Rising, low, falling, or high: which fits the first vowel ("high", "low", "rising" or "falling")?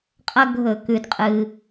high